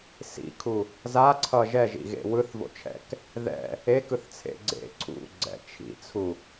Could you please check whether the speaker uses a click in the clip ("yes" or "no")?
yes